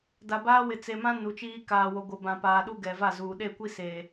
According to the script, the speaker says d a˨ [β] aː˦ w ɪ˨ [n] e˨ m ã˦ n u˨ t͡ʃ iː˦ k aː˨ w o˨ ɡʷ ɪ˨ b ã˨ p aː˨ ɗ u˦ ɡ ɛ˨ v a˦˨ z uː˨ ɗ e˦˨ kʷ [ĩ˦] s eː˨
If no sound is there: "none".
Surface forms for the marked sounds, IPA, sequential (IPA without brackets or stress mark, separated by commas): b, t͡s, i˦